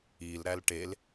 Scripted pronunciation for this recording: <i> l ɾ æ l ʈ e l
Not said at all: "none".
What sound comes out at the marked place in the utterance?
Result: i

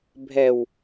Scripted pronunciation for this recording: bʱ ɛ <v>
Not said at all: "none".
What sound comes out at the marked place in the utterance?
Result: w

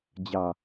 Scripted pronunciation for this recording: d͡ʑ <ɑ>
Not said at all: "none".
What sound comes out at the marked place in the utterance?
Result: ɑ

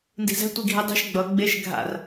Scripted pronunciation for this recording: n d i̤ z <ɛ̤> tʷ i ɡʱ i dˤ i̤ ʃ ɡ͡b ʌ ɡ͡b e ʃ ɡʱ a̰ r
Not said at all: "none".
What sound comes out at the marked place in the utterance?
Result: ɛ̤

